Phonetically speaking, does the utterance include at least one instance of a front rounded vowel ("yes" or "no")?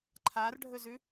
no